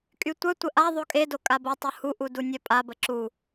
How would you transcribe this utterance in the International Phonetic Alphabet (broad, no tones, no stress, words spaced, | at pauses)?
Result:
kʼytʷœtʷə ʔa ðˤokʼedo kʼabotˤu huʔu dunʲœpʼabə ǁu